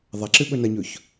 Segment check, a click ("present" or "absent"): present